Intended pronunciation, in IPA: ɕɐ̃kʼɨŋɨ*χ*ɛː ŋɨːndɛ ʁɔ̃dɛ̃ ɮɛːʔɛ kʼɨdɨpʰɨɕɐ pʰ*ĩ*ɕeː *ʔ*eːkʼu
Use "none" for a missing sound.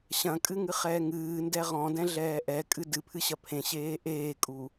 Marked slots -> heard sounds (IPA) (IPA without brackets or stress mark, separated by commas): χ, ẽ, ʔ